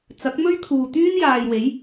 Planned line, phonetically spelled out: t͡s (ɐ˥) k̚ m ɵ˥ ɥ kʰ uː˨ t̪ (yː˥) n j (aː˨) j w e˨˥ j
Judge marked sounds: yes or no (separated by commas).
no, yes, yes